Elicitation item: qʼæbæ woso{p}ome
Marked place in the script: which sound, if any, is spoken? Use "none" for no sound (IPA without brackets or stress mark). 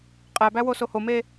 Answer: h